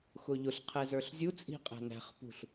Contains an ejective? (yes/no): yes